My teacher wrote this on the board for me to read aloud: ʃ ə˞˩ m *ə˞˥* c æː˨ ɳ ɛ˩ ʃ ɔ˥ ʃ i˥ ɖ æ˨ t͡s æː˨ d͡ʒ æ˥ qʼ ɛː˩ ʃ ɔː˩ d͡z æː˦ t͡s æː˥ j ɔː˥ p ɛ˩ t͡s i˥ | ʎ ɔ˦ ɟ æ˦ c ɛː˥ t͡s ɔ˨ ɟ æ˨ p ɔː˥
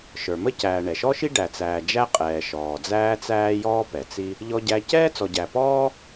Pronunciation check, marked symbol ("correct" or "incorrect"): incorrect